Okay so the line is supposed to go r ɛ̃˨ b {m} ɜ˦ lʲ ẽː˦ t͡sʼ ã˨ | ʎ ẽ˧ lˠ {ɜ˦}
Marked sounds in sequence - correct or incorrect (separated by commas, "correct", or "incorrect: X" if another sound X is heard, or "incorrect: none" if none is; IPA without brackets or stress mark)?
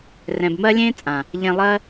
correct, correct